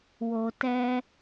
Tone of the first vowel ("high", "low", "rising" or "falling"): low